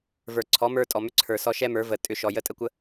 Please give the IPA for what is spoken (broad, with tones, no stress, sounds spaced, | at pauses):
v ə˞˨ ǀʰ ɔ˨˦ m ə˞˧ tʼ ɔ˨ m ʏ˧ ǀʰ ə˞˨ s ɔ˧ ʃ ɛ˦ m ə˞˨˦ v ə˨ tʼ ʏ˧ ʃ ɔ˨ j ə˦˨ tʼ ə˦ kʷ ə˦